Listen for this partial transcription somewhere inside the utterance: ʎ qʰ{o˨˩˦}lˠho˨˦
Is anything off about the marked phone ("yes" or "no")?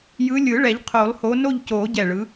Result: no